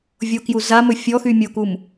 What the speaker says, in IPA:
vʲ o k j u z a m ɵ fʲ ɔ x y mʲ o k u m

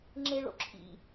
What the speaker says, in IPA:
ŋ͡ǁ e ɭ o̰ ǁʰ ḭ

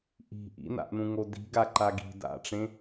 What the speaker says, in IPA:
ʔ i̤ ʔ ḭ n a̰ ʔ n ũ ŋ o d i̤ ɡ a ǃ a ɡ i̤ d a̰ ʈ͡ʂ ẽ

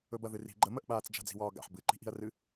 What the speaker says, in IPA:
ɵ b ɐ ð ɨ r i̤ ɡ͡ǃ ə m ə ʔ ɓ aː t͡s d͡ʒ a̤ d͡z i̤ w ɒː ɡ a̰ ħ b ɨ ǃ i̤ ʔ i̤ ɐ̯ r ɨ

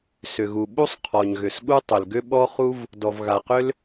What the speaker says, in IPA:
s ʏ˩ ɣ u˩ ɓ u˥ sˤ qʰ ɔ˩ ɲ ɣ ʏ˩ s ɠ u˥ tˤ ʏ˩ l ɡ ʏ˥ ɓ ɔ˥ χ u˥ v | d ɔ˩ v ɣ a˩ q ʏ˥ l

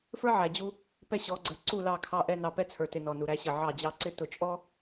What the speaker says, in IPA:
f ə˞˦ ʕ æ˨ d͡ʑ u˦ | p ɛ˦ ɕ ɔ˨˦ ɡ͡ǀ ə˞˨ ǀ u˦˨ l ɑ˦˨ kʰ ɑ˦ ʔ ɛ˦ n ɑ˨ p ɛ˦ t͡sʰ ə˞˨ t ɪ˨ n ɔ˨ n u˨ ɾ æ˦ ɕ ə˦˨ ʕ ɑ˦˨ d͡ʑ ɑ˦ ǀ ɪ˦ t ʊ˨ t͡ʃʼ ɔ˦

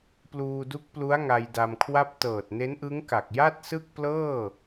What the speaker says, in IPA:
p l uː˧ d u˦˥ k̚ p l u˦˥ a̯ ŋ a˧ j d a˧ m kʰ w a˥˩ p̚ t ɤː˨˩ t̚ n e˦˥ n ʔ ɯ˦˥ ŋ k a˨˩ k̚ j a˥˩ t̚ s ɯ˥˩ k̚ p l ɤː˥˩

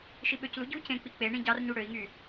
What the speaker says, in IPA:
ʃ i ɓ ø c l u ɟ u c ẽ k͡p i k͡p e ɳ ĩ ɟ ɑ r ɲ u ɽ ø i̯ ŋ y

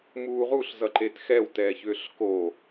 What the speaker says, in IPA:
m uː ʁ u ɬ z ʌ ǃ e t x ɛ w t ɛː ç ʏː ɬ k o

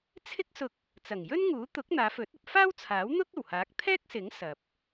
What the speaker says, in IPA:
t͡sʰ ɪ˥ k̚ s ʊ˧ k̚ | t͡s ɐ˨˩ ŋ j ɵ˥ n ŋ uː˨˥ t̪ ʊ˨˥ k̚ n̪ aː˨˧ f ɵ˨˥ t̚ ɐ˧ p̚ f aː˥ w t͡sʰ aː˨˥ w n̪ ʊ˥ k̚ ɐ˨˩ w h aː˨˥ k̚ t̪ʰ ɛː˥ k̚ s ɪ˨˥ ŋ s ɐ˨ p̚

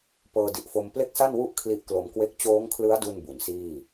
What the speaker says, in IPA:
p ɤː˧ d i˨˩ ʔ f o˧ m p l e˥˩ k̚ s a˥˩ n w u˥˩ ʔ kʰ l i˦˥ ʔ k l o˧ m k w e˥˩ k̚ t͡ɕ oː˦˥ ŋ kʰ l ɯ˦˥ a̯ d u˥˩ n b u˩˦ n s iː˥˩

